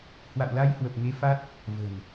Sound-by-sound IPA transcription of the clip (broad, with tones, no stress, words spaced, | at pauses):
hwa̰˧˨wla˧jhwə˨˩p̚ŋe˨˦ fa˦˥t̚ | və̤˨˩n